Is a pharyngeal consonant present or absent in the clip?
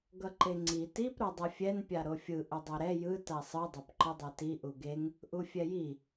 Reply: absent